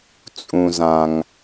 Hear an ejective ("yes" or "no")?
yes